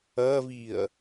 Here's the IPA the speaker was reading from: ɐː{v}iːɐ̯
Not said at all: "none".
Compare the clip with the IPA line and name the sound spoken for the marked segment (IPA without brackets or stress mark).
v